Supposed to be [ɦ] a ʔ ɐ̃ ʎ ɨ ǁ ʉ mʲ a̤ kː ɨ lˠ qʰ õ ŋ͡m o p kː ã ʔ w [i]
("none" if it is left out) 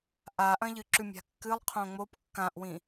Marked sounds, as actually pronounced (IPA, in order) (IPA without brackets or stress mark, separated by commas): ʔ, ĩ